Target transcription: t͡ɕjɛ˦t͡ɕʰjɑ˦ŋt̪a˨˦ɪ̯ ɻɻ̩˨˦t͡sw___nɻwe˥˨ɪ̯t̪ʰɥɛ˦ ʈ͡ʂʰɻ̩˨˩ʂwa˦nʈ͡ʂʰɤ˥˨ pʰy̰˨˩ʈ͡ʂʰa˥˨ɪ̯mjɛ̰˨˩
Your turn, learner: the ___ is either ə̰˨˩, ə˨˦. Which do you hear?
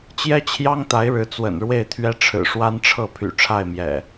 ə̰˨˩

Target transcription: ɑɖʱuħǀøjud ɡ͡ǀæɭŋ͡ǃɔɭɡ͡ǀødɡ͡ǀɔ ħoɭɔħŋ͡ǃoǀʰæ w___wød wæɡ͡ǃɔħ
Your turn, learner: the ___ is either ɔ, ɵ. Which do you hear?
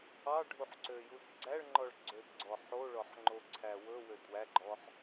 ɵ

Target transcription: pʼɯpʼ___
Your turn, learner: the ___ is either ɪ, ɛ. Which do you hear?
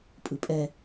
ɛ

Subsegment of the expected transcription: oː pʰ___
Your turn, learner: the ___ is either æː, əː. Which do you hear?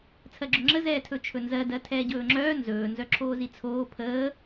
əː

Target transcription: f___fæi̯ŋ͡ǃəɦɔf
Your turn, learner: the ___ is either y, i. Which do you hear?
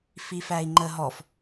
i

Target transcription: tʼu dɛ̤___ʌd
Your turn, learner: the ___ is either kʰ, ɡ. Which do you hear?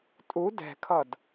kʰ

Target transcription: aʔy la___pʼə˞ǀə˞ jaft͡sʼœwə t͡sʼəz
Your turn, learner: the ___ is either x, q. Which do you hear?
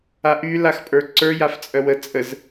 x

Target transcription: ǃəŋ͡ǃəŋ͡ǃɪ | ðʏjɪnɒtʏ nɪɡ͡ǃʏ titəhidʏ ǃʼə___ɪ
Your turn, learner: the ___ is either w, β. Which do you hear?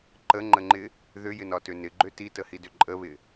β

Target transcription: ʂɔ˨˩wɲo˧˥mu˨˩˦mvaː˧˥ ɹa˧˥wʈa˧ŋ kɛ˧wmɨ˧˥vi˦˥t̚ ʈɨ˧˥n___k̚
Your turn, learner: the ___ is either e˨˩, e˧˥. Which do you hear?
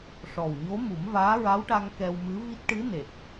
e˨˩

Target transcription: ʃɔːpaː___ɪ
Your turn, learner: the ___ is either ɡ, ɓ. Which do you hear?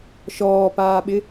ɓ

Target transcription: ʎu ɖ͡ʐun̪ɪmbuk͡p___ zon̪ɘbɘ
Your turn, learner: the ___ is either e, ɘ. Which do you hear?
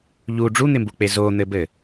e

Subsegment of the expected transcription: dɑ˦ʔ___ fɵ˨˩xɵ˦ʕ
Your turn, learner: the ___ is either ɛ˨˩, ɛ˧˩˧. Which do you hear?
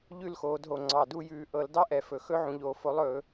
ɛ˨˩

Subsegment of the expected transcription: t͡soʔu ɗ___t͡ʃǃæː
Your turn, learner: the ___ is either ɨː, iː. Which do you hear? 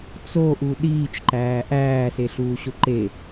iː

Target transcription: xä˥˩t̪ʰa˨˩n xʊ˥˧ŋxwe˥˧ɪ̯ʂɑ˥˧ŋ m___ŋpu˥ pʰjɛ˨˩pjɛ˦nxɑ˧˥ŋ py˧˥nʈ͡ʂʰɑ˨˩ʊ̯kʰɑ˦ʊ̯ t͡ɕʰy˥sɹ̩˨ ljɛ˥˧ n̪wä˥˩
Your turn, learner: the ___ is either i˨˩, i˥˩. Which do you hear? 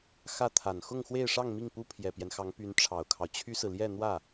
i˥˩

